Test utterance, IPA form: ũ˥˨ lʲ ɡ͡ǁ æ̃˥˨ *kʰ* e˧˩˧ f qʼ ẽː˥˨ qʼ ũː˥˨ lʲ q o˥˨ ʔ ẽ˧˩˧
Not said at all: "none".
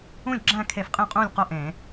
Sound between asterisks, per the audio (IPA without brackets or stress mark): kʰ